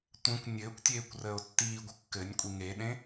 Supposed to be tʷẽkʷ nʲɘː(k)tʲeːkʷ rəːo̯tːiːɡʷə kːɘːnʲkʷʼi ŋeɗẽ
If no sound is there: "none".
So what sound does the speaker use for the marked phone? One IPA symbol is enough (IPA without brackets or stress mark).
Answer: kʷ